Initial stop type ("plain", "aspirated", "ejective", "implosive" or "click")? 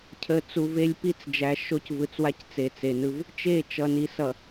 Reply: aspirated